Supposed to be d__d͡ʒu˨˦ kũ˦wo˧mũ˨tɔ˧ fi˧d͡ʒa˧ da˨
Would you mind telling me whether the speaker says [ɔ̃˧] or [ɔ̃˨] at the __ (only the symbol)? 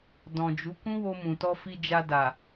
ɔ̃˨